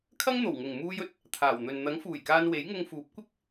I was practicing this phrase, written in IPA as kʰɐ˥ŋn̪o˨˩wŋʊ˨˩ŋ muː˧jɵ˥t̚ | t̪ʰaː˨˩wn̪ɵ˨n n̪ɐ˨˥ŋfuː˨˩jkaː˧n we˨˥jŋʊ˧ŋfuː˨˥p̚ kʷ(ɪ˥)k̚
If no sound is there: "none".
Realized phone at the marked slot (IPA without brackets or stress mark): ɪ˥